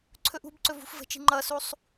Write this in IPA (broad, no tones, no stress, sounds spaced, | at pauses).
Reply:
ǀʰ ɵ ʔ ṳ b ǀ ɵ v ṳ f v ə̤ t͡ʃ i̤ ŋ͡ǃ ʌ s u sˤ